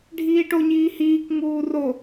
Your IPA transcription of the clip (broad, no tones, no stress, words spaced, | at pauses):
ɖʱiːʈoɲiː hiːk ŋuːro